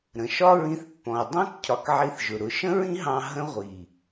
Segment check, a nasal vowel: present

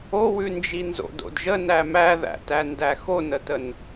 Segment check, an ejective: absent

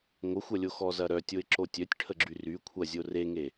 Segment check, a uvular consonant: absent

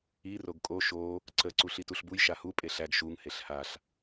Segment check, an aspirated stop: absent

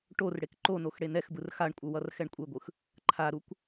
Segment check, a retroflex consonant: present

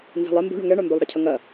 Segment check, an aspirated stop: present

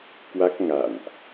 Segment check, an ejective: absent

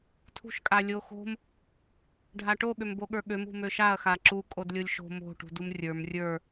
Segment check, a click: present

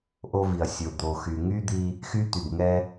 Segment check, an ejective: absent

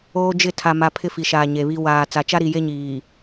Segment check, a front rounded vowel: absent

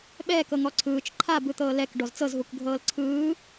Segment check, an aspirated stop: present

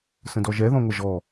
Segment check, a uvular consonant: absent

